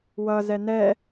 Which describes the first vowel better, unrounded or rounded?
unrounded